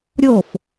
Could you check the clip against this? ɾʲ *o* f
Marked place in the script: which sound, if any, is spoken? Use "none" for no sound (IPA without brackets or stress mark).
o